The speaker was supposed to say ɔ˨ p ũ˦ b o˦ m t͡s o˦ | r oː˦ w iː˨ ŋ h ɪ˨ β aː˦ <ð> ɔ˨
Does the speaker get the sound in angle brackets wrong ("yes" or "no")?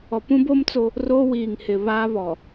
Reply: yes